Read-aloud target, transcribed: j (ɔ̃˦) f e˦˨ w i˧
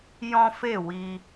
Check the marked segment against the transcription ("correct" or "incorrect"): correct